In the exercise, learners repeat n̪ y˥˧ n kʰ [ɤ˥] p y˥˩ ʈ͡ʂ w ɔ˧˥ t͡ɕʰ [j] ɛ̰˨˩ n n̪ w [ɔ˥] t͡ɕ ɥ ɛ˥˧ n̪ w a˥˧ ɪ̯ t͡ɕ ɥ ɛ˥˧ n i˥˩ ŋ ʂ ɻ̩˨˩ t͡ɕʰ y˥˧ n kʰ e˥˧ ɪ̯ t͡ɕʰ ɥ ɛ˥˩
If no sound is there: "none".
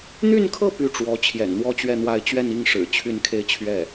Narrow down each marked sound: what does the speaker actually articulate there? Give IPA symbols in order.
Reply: ɤ˥˧, j, ɔ˥˧

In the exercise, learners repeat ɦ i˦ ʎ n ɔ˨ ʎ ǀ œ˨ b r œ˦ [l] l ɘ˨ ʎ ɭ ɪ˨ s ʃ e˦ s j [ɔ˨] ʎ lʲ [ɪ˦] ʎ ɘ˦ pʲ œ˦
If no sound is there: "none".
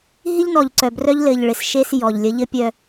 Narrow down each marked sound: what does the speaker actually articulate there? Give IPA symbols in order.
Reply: ʎ, ɔ˨, ə˦

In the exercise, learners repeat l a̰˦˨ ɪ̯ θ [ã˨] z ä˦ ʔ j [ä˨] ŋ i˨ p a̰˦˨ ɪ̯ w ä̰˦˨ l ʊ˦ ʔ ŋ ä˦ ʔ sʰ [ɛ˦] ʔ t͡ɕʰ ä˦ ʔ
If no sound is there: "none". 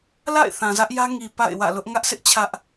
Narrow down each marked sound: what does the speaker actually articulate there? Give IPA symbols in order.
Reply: ã˨, ä˦, ɪ˦

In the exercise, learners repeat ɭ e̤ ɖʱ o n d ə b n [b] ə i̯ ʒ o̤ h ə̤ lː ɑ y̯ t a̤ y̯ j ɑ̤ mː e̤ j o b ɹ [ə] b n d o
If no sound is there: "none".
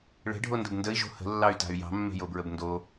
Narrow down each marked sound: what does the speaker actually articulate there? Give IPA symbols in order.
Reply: d, ə

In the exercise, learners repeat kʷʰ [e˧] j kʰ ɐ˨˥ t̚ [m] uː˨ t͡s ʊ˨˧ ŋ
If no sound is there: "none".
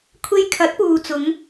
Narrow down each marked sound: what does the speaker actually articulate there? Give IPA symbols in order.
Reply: e˧, p

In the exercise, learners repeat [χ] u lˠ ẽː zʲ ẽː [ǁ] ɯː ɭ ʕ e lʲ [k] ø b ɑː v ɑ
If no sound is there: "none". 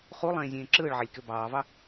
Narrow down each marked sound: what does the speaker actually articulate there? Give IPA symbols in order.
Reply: χ, ǁ, k

